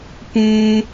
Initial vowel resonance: nasal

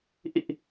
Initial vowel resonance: oral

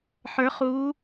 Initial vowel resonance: oral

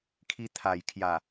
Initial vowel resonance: oral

